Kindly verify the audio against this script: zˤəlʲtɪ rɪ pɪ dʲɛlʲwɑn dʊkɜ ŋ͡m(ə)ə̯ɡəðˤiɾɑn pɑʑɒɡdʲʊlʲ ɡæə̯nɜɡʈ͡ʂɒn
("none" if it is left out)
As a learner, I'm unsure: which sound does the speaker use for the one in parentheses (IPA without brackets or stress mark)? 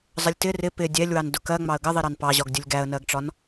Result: ɑ